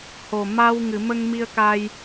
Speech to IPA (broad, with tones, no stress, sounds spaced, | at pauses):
h o˨˩ m a˧ w ŋ ɨ˨˩˨ m ə˧ ŋ m i˧ ə̯ k a˧ j